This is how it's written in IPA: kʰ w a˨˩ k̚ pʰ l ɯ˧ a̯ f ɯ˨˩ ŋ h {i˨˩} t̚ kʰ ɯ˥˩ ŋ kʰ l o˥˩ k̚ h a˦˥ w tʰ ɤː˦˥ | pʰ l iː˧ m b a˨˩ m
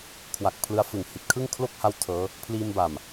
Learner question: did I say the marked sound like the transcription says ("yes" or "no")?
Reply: yes